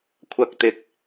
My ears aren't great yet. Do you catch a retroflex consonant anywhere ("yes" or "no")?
no